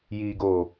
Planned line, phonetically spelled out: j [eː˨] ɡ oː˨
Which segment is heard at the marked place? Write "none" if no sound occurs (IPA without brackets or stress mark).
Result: iː˨